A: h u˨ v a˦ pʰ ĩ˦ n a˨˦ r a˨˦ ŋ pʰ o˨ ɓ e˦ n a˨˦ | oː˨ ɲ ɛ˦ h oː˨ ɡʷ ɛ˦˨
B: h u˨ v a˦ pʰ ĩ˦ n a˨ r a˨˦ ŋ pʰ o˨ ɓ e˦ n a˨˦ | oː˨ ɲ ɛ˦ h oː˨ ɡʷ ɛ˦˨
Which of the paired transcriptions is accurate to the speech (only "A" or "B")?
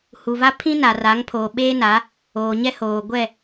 B